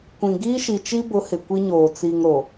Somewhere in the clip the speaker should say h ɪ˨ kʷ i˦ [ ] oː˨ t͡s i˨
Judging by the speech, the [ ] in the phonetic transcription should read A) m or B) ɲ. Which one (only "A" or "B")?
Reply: B